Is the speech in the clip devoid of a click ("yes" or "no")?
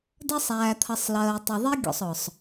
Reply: yes